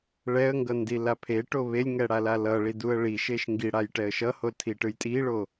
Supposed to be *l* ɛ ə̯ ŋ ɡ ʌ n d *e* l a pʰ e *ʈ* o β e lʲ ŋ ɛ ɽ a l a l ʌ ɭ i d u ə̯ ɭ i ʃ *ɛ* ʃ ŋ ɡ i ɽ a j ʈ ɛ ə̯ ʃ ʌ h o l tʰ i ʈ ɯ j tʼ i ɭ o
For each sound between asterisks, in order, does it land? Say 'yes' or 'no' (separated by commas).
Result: no, no, yes, no